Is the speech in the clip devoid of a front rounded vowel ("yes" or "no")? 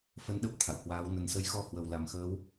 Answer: yes